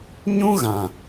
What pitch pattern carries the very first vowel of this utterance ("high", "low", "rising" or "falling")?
high